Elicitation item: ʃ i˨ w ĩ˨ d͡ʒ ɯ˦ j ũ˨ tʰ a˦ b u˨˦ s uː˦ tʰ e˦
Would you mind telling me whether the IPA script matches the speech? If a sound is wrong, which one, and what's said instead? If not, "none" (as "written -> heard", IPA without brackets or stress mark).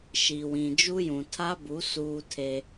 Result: ɯ˦ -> u˦